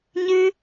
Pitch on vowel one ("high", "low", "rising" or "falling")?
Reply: high